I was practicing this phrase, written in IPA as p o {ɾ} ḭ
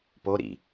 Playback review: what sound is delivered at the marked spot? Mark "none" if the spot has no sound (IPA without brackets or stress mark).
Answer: ɾ